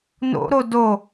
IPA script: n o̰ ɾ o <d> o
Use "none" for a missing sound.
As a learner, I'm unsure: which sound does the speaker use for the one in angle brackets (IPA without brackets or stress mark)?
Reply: d